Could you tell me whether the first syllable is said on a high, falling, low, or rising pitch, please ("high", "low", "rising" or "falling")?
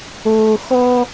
low